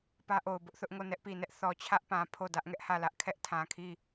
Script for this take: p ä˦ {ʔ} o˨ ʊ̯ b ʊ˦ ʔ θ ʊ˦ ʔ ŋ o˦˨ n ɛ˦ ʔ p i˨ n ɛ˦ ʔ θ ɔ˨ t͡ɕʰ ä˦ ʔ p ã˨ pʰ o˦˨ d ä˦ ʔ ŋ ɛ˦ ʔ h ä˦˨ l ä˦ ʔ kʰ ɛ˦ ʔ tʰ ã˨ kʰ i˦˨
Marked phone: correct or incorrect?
correct